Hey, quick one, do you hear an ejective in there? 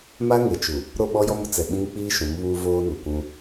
no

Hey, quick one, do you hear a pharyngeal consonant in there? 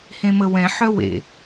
yes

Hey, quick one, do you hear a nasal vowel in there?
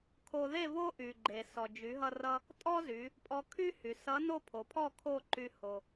no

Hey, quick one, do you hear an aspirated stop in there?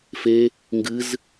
no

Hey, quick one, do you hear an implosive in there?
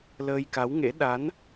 yes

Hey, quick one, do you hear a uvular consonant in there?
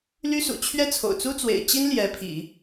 no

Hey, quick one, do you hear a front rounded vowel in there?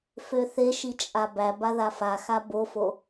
yes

